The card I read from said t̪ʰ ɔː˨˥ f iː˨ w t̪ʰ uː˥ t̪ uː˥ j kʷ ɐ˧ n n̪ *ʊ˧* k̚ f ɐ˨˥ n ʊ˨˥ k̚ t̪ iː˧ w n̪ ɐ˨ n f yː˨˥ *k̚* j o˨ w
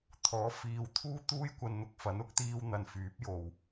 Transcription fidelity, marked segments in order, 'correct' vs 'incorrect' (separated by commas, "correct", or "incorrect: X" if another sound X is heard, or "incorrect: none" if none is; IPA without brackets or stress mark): correct, incorrect: p̚